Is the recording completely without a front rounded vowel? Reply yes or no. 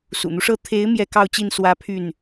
no